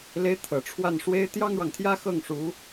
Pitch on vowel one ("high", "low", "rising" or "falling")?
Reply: rising